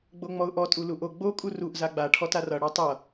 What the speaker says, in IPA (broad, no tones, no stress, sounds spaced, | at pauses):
ɡ͡b o ŋ͡m ɔ ʊ̯ ʔ ɔ tʼ u l u ʔ o ɡ͡b o kʼ u r u ʔ z a ɡ͡b a ʈʰ ɔ t a r ʌ ɽ ɔ tˤ ʌ